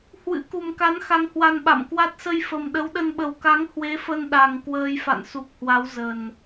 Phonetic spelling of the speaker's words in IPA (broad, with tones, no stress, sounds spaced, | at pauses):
h w ɨ̰˧˥ k u˨˩ m k a˨˦ n x a˧ ŋ h w a˧ n ɓ a̰˧˨ m k w a˦˥ t̚ s ə˧ j f ə˨˩ m ɗ ə˨˦ w ɗ ə˧ n ɓ ə˨˩ w k a˨˦ ŋ h w e˨˦ f ə˧ n ɗ a˨˩ ŋ k w əː˧ j f a̰˧˨ n s u˨˩ k̚ h w a˨˦ w z ə˨˩ n